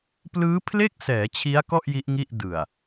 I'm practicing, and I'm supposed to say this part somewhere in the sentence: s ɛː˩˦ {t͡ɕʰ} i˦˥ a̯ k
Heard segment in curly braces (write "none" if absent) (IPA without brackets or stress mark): t͡ɕʰ